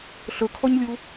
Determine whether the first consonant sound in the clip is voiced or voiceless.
voiceless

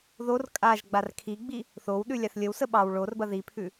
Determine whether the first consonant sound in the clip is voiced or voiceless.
voiced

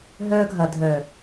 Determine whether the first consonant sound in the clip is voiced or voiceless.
voiced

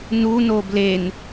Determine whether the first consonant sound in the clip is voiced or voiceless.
voiced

